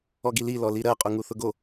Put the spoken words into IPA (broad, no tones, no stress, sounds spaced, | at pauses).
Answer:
ɔ ɡ i l i l ɔ l i ɾ ɜ qʼ u ŋ u θ ʊ ɡ o